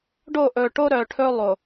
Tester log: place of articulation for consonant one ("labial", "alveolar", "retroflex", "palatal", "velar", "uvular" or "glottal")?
retroflex